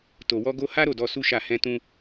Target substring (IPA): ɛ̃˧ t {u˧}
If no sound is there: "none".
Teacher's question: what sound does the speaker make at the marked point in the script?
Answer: ũ˧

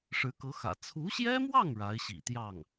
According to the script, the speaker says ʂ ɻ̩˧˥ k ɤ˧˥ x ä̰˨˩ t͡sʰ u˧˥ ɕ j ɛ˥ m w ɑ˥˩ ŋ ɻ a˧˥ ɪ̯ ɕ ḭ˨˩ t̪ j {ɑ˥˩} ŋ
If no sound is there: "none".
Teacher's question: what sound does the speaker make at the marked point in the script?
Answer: ɑ˥˩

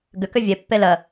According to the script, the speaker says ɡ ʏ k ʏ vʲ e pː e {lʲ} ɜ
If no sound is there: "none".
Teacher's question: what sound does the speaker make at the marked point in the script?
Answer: l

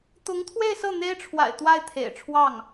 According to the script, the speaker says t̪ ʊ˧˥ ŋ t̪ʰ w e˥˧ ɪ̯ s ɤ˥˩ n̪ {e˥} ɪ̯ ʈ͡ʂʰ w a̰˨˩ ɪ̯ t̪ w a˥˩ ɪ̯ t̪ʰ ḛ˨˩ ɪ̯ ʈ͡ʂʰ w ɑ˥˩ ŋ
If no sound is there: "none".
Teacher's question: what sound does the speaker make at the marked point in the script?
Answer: e˥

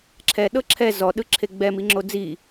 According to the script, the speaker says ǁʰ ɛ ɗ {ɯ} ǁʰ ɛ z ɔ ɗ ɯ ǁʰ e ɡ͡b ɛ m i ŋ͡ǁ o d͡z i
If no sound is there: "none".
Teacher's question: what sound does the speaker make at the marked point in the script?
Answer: ɤ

